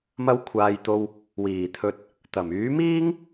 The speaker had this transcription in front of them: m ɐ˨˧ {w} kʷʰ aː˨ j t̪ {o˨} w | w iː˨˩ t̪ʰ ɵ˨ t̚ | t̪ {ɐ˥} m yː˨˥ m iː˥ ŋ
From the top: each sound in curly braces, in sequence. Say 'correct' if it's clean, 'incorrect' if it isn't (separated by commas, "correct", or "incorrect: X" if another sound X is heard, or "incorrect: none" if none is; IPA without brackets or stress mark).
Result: correct, correct, incorrect: ɐ˨˩